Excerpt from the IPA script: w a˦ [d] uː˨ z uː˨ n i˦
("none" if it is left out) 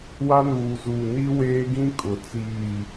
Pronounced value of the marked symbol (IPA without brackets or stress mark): n